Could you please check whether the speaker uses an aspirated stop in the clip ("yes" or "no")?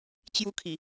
yes